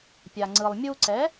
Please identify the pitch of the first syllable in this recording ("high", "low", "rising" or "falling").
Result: low